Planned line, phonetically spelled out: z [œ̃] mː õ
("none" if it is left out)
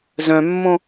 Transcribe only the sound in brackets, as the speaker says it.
œ̃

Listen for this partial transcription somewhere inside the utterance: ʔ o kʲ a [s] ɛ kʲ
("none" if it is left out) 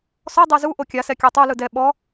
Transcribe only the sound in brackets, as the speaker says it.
s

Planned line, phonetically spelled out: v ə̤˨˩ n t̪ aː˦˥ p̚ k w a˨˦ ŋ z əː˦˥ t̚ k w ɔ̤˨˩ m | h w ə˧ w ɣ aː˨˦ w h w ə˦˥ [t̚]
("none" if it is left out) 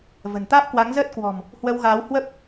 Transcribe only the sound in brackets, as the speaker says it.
p̚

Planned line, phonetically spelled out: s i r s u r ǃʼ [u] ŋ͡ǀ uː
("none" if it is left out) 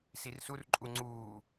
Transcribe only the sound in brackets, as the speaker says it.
u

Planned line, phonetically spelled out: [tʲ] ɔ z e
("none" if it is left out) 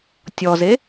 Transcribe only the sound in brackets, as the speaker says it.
tʲ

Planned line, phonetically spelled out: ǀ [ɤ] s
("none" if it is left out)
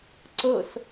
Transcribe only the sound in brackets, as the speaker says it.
ɤ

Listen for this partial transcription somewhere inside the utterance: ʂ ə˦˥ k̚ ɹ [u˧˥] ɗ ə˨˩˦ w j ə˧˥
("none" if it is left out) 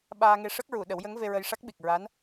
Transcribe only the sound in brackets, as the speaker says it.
u˨˩˨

